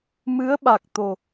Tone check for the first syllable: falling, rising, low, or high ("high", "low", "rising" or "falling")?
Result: rising